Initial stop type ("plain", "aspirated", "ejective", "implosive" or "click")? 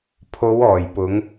aspirated